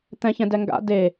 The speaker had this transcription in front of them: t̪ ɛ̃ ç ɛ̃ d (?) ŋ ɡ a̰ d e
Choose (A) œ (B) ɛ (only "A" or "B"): B